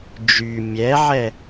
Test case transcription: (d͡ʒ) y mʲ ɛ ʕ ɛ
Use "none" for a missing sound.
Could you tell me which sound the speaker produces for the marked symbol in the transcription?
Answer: d͡ʒ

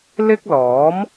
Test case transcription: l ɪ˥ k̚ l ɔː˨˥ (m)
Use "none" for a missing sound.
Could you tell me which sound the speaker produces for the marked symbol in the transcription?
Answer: m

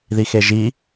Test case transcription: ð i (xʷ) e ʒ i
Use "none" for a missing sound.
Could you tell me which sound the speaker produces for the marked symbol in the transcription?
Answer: x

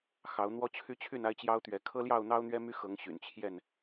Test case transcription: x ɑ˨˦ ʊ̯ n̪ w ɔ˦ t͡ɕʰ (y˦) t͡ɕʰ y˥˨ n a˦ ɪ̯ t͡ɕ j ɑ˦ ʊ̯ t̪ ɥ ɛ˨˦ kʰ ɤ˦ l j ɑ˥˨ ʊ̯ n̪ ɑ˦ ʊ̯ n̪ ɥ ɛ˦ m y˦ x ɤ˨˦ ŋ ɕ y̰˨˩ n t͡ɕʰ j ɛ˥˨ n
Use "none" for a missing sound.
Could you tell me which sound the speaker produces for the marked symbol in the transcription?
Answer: y˦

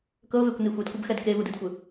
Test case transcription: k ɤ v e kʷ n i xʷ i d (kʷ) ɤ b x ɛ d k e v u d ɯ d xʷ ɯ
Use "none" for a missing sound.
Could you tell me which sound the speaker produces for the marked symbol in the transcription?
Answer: kʷ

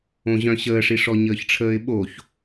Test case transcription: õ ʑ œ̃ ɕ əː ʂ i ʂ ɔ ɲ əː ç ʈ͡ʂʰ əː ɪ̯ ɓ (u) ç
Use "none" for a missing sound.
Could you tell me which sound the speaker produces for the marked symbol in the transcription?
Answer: o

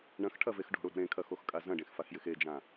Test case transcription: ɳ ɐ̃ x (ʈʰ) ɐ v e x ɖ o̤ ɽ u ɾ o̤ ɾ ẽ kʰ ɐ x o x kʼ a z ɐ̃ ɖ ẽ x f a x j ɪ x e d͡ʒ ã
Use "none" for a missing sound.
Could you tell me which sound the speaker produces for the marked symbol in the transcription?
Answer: ʈʰ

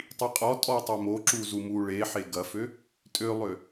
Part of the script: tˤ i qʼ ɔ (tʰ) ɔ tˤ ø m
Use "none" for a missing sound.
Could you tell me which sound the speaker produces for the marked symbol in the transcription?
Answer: tʼ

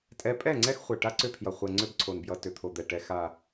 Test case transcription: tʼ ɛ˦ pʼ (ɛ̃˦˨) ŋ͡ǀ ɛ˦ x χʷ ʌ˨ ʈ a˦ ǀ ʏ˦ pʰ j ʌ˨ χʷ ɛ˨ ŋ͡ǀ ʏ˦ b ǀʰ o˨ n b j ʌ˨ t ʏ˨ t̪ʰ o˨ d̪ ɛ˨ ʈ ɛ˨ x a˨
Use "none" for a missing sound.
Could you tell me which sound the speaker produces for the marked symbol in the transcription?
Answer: ɛ˦˨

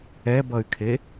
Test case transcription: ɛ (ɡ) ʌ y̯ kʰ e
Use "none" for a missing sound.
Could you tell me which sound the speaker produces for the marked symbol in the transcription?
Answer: b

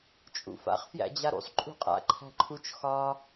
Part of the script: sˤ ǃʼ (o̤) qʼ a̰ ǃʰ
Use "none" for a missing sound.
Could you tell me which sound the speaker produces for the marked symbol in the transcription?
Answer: ṳ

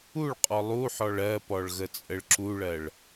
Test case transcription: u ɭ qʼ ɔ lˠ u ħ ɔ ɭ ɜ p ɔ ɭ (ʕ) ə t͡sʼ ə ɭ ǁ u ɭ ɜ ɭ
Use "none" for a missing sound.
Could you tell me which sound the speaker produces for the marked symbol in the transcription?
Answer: ɣ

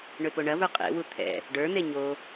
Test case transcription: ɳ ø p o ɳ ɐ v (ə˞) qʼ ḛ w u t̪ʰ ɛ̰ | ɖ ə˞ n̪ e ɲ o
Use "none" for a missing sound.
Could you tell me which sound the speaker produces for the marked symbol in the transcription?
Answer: ə˞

